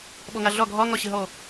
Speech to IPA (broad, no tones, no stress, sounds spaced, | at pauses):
ɓ ɔ ŋ a ɮ ɒ ɡʱ ɒ ŋ ɒ ɕ ə ɦ ɔ